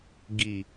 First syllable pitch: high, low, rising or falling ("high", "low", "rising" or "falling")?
low